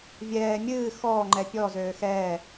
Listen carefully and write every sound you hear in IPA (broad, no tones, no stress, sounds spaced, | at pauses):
vʲ ɛː mʲ ɨː x ɔː ŋ͡ǃ ɛ pʲ ɔ z øː x ɛː